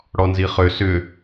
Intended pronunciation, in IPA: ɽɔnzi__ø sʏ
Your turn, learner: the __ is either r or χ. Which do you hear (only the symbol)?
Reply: χ